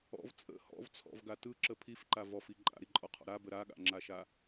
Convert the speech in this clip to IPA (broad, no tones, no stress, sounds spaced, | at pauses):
ɔ̰ v t͡sʼ ə̰ h ɔ̰ v t͡sʰ ɔ̰ v ɡ a t ɯ ǁ ə pʰ i f ǃ a v ɔ f i ǃʼ a̰ ɾ i ǃʼ ɔ qʰ ɔ̰ ɾ a b ə ɾ a ɠ a̰ ŋ͡ǁ a ʃ a